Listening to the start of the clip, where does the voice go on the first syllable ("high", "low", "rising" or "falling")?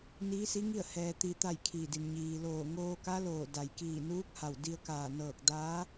rising